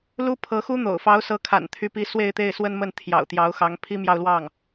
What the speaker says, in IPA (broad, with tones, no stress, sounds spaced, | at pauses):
l u˥ pʰ ɤ˧˥ x u˥ n̪ o̰˨˩ ʊ̯ f ɑ˧˥ ʊ̯ s ɤ˧˥ kʰ a̰˨˩ n t̪ʰ y˧˥ p i˧˥ s w e˥˧ ɪ̯ t̪ e˥˩ ɪ̯ s w ə˥ n m ə˥˩ n t̪ʰ j ɑ̰˨˩ ʊ̯ t̪ j ɑ˧˥ ʊ̯ x ɑ˧˥ ŋ pʰ i˥ m j ɑ˥˧ ʊ̯ l w ɑ˥˩ ŋ